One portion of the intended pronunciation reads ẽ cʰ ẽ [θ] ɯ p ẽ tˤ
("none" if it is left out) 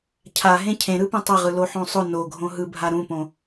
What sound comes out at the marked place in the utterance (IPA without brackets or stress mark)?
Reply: ɾ